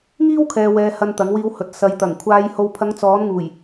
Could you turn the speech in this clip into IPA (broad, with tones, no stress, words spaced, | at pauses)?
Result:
ŋiː˥wkʰɛː˨wɛː˨ hɐ˧nt̪ɐ˨˥ŋwiː˧whɵ˨˥t̚ sɐ˨jt̪ɐ˨˩ŋkʷʰaː˧j ho˨wpʰɐ˨˧ŋ t͡sɔː˨˥nŋuː˨˩j